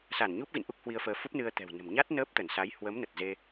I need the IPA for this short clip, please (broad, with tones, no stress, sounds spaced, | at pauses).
s a˧˩ n ɲ u˦˥ p̚ ɣ ḭ˧˨ n ʔ u˦˥ k̚ h w i˧ ə̯ f əː˧ f u˦˥ p̚ n ɨ˧ ə̯ t̪ ɛ̤˨˩ w n ə̤˨˩ m ɲ a˦˥ t̚ n əː˦˥ p̚ t̪ ə˧˩ n s a˨˦ j h w ə˨˦ m n ə˨˩ t̚ z e˧